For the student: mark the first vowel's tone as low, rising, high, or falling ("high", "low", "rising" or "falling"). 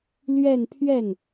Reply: falling